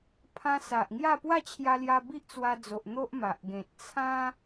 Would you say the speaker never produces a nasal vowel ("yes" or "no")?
no